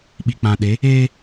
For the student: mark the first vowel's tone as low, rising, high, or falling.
low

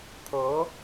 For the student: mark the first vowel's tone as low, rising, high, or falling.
rising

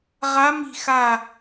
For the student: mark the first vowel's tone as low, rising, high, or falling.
rising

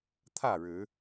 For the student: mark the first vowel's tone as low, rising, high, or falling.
falling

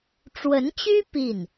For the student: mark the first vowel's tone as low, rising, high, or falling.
rising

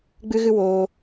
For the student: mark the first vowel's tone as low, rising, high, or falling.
high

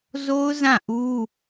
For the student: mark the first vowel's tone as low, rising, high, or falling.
high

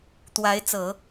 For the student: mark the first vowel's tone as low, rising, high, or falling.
rising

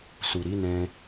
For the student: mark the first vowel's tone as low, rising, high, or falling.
low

